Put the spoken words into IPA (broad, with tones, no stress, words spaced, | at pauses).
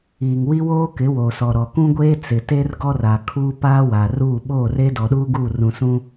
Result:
iː˨ŋwi˦ woː˦kɪ˨˦ woː˨sɔ˨ɾɔ˨ kũ˦ɡʷeː˦ t͡sɪ˨te˦r ɡɔ˦ra˨kʰuː˦ paː˦wa˨ruː˦˨ ɓoː˦˨re˦dɔ˨ɗuː˦ ɡu˦˨ rũ˨sũ˦